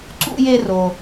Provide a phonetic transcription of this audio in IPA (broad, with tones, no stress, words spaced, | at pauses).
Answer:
ǀṵ˥je˥ ro˧